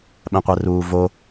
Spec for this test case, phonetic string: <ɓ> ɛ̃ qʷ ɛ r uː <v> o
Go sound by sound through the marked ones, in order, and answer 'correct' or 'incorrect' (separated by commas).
correct, correct